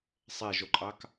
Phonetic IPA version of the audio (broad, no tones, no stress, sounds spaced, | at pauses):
sˤ e ʒ o ǃʼ ɑ k